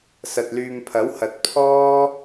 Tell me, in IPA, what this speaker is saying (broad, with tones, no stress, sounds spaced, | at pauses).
s ɐ˨ t̚ l yː˨ m pʰ ɐ˨˥ w h ɐ˨ t̚ pʰ ɔː˥